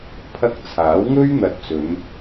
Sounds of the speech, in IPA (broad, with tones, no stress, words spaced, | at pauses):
pʰɐ˥k̚ t͡sʰaː˨˥wŋɵ˥ɥ n̪ɐ˧t̚t͡sɵ˨˧n